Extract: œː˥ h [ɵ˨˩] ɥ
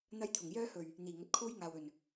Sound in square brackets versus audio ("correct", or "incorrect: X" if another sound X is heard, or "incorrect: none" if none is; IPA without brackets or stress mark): correct